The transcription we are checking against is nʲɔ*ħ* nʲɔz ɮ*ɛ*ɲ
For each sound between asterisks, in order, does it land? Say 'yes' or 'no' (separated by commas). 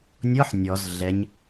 yes, yes